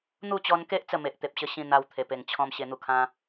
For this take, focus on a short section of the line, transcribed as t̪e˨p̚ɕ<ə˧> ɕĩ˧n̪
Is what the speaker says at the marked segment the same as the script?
yes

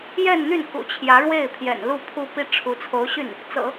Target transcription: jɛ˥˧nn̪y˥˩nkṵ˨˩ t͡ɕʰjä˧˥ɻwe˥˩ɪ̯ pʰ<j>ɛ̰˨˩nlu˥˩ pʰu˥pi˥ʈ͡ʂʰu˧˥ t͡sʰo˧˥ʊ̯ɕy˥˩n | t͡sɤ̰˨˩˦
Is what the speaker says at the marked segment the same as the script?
yes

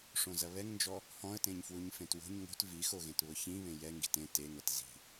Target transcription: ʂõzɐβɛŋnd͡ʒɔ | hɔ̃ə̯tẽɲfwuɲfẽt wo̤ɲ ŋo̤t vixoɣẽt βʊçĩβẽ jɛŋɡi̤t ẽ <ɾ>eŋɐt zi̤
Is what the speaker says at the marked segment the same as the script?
no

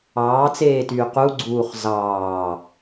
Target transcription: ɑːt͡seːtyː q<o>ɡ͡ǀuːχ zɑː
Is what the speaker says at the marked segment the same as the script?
no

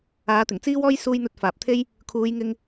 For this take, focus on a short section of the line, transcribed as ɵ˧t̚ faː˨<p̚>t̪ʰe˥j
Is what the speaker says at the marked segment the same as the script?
yes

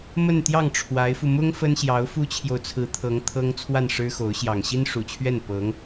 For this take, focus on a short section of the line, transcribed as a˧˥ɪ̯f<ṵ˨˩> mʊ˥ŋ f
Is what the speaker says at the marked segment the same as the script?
no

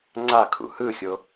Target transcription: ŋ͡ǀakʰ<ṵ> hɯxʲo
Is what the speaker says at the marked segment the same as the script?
yes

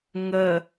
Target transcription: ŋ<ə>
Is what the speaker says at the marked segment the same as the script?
yes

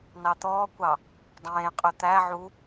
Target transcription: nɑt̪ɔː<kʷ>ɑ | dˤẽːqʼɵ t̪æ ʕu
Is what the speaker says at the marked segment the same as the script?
yes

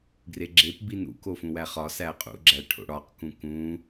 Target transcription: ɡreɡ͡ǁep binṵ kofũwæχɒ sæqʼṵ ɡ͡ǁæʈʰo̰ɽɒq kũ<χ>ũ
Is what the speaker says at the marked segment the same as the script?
no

